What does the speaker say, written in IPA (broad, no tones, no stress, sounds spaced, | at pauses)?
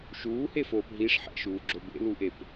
ʃ uː h e f oː p ɦ i ʂ ħ ɛ̰ ʃ uː ɡ͡ǁ o b ḛ l u ʔ e p